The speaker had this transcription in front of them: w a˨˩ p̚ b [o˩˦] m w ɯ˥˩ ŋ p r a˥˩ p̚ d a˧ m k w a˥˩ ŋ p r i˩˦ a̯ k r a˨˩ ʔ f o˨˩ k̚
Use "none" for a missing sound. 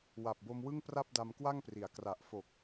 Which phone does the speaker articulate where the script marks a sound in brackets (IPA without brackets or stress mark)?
o˧